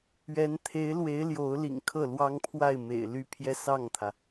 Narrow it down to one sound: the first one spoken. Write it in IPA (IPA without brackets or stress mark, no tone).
ɥ